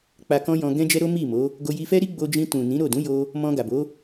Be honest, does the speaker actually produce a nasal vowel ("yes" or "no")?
yes